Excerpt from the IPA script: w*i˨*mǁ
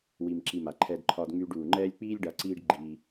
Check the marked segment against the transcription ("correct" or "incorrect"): correct